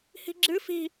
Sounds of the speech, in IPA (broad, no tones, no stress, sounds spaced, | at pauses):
h i̤ ɡ͡ǁ ɨ f i̤